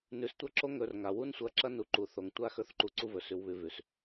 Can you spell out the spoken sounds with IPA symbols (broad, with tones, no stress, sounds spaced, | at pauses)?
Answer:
n ʉ˨˦ s tʷ ɐ˦ ǁ o˦ ŋ ɵ˧ r ŋ a˨ w u˦ n sʷ ɐ˧ ǁ ɐ˦ n u˧ ǃ u˨ θ o˨ ŋ tʷ a˦ x ɵ˦ θ ǃ u˧ ǀ u˦ v ɵ˨ s ʉ˨ w β ʉ˨ v ʉ˨ s